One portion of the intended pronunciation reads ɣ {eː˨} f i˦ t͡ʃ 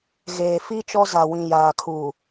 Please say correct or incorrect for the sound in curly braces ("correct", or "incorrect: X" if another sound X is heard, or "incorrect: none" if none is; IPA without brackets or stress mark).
correct